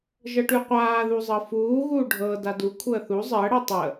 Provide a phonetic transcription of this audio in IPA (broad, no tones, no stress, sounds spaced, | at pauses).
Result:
ʒ ɤ ʈ ʉ qʷ aː ð u zˤ ɤ f uː ɣ uː ɖʱ ɤ d a d u kʷʰ əː θ u zˤ əː ɽ ɤ tˤ ə